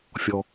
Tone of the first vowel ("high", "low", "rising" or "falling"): low